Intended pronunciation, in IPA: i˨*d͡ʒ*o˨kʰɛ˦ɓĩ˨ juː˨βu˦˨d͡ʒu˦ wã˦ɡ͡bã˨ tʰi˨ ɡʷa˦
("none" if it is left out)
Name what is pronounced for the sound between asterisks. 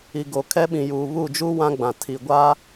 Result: ɡ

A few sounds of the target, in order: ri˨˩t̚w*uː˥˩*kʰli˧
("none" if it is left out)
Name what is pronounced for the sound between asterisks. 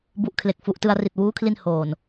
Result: uː˦˥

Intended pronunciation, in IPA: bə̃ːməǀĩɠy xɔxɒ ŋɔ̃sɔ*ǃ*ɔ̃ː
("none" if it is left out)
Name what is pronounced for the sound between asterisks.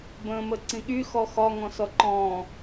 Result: ǃ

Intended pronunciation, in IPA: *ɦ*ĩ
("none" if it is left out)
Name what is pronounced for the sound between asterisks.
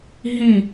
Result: ɦ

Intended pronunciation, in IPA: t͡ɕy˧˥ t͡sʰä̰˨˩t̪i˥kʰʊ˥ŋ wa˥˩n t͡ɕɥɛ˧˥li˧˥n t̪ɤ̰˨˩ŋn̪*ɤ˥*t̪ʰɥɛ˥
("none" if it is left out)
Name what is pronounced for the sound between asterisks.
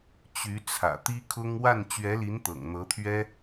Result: ɤ˧˥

